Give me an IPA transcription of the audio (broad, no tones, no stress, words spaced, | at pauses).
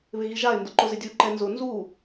βɪɣiʒaɪ̯ ndʊǃʊzɪdʲu ǃɛnzʊ nzu